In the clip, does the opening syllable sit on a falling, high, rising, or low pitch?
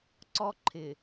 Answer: high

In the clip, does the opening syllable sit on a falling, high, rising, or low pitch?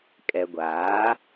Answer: low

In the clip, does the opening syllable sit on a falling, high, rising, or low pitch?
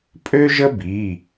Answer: high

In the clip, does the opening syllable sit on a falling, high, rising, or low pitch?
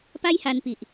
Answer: high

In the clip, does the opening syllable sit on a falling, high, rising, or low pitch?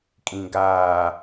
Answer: low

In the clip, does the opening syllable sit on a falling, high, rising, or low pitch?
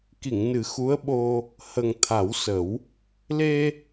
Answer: low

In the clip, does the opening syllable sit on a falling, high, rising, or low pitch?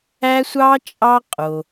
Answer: high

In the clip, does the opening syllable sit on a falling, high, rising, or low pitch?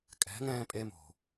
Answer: rising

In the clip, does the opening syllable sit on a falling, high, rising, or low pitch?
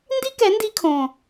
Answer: high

